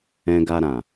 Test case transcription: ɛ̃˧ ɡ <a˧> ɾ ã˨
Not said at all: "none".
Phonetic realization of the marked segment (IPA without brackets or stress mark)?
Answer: a˧